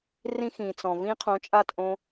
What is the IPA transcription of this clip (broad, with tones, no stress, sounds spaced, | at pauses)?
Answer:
r ĩ˦ x ĩ˨ t͡s ɔ̃˨ v ĩ˦ qʰ õ˧ t͡ʃʼ a˦˨ t ʔ õ˧